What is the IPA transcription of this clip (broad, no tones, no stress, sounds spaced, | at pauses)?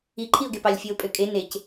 i ǃʰ i ʊ̯ ɡ e p ɑ lʲ fʲ e ʊ̯ pʼ ø kʼ e n e c